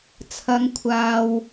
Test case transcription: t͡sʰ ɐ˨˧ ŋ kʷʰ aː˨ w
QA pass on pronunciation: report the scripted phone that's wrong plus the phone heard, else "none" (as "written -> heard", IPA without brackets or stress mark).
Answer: none